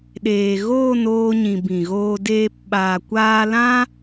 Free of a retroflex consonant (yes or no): yes